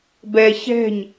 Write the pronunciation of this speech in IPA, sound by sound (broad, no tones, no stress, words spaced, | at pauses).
bɛ çɛ̤ɲ